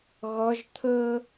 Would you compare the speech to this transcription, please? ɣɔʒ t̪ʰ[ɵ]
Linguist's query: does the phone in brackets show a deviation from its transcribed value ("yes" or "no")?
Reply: yes